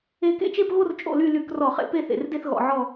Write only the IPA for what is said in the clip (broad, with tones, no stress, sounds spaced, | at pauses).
e˥˧ k ḛ˥˧ t͡ʃ e˥˧ p ɣ o˥˧ r t͡ʃʼ o̰˥˧ l y˥˧ l y˧˩˧ k r ɔ˧˩˧ χ ḛ˧˩˧ p e˥˧ θ ḛ˩˧ r d e˥˧ θ ɣ ɔ̰˧˩˧ ʕ ɔ˥˧